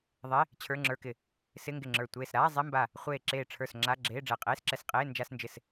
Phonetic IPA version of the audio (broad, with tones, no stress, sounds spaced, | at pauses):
ðˤ e˧˥˧ | t͡ɕʰ ə˞˧˥˧ ŋ͡ǁ ə˞˧˥˧ k ɪ˧˩ | s ɪ˧˥˧ ŋ ɡ ɪ˧˩ ŋ͡ǁ ə˞˧˩ tʷ eː˧˩ s ɾ aː˧˥˧ zˤ e˧˥˧ m b a˧˩ | χʷ eː˧˩ ǁ eː˧˩ ʈ͡ʂʰ ə˞˧˩ s ŋ͡ǁ a˧˥˧ ɡ͡ǁ eː˧˥˧ ɖ͡ʐ ɛ˧˩ qʼ eː˧˥˧ s ǁ ɛ˧˩ s qʼ eː˧˥˧ n d͡ʒ a˧˥˧ s n d͡ʒ ɪ˧˩ s